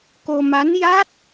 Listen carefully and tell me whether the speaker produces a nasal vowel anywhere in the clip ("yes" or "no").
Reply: no